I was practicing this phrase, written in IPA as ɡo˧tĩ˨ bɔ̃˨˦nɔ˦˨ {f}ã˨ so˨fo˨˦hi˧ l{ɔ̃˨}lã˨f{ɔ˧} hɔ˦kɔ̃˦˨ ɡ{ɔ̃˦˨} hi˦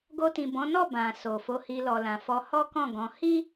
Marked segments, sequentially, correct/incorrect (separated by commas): incorrect, incorrect, correct, incorrect